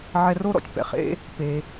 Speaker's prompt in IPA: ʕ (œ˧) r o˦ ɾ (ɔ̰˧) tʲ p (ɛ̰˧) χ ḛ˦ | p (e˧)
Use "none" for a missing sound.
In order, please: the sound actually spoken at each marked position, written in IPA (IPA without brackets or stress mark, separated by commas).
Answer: ɛ˧, ɔ̰˧, ɛ̰˨, e˧